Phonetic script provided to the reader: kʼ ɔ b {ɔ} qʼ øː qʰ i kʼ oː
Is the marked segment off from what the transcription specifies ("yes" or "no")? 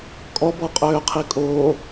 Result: no